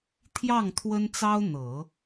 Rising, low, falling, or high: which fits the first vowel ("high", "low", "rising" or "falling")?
falling